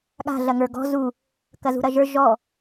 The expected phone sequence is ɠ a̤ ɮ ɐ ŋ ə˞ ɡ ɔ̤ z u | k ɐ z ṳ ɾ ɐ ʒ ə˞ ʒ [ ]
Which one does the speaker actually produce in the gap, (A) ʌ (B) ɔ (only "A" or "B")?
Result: B